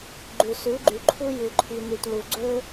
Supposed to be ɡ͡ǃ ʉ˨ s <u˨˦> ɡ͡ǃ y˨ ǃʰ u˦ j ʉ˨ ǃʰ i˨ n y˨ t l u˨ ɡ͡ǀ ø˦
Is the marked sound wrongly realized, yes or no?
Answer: yes